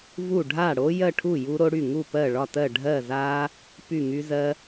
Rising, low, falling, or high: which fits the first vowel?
falling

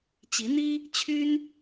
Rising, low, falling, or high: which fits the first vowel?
rising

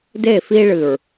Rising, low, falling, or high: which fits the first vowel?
falling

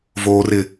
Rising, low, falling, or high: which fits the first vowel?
low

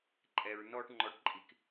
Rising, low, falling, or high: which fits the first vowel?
low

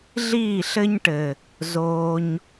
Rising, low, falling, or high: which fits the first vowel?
falling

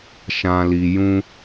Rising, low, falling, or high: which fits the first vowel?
low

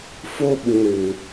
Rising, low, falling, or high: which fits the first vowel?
high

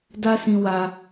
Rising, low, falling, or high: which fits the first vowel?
high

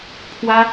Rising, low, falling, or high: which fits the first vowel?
high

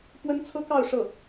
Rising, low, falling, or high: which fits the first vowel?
high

